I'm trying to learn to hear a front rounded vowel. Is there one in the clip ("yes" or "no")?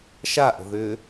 yes